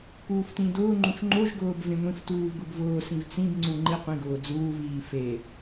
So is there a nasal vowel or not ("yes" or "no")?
yes